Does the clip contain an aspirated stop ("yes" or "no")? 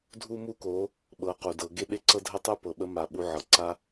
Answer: no